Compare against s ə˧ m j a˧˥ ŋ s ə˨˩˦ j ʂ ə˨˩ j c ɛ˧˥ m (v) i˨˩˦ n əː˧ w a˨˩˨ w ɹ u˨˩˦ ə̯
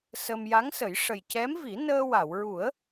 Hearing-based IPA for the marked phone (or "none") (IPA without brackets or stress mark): v